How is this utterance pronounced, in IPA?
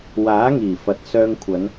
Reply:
w aː˨˥ ŋ iː˨˩ f ɐ˨ t̚ s œː˧ ŋ kʷʰ ɐ˨˧ n

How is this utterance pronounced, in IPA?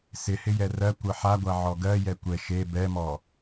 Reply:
s ɪ h ɪ j ɛ r ɜ kʷ ɜ ħ a ɡʷ a ʕ ɔ ɡ ɜ j ɛ kʷ ɛ ʃ e b ɛ m ɔ

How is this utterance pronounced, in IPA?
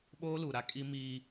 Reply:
ɓ oː˦ l u˨ ɾ a˦ kʼ i˦ m iː˦

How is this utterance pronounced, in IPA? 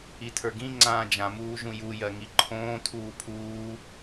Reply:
i tʰ ə˞ ɡ ĩ ŋ͡ǀ ãː d͡ʒ ã m uː ʒ ũ j u j ɜ ŋ i ǃʰ õː tʰ uː pʰ uː

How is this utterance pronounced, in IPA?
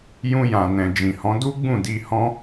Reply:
j ũ˧ j ã˨ n ɛ̃˨ d͡ʒ ĩ˨ h ɔ̃˨˦ d u˦ ɡ͡b ũ˦˨ d i˧ h ɔ̃˦

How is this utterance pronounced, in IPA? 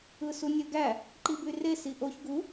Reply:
ɯ s u nʲ ø ɡ æ | ǃ i b y r e s i ʔ o ç ɡ u

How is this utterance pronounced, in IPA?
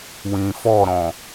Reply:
w ĩ f ɔ ɾ ɔ̃

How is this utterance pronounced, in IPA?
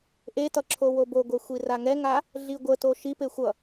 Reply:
ʔ e t ʌ ǁʰ o w o b o ɡʷ ɛ xʷ i r a ŋ ɛ ŋ a | ɮ i ɡʷ ə t o ʃ i p e xʷ ʌ

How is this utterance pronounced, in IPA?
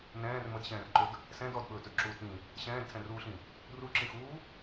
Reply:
n ɛ̃ː r m ə d ɕ ɛ̃ː r ǃ ʊ d | s ɛ̃ d ɔ d ɓ ɵː t ɵ d ǁ uː t ĩ | ɕ ɛ̃ː d tʰ ɛ̃ r uː ɬ ĩ | r u ǁ ĩ x uː

